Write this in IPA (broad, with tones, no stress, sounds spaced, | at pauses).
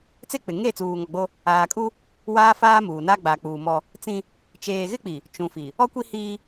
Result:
t͡s e˦ k͡p ɪ˨ ŋ e˦˨ t͡s uː˨ ŋ ɔ˨ ɡ͡b o˦ | aː˨ kʼ u˦ | w aː˦ f aː˦ m uː˨ n a˦ ɡ͡b a˨ k͡p uː˨ m ɔ˦ | t͡s ĩ˦ | t͡ʃ eː˨ ɣ ɪ˦ k͡p i˨ | t͡ʃ ũ˨ f i˨ | ɔ˦ kʷ i˦ h iː˦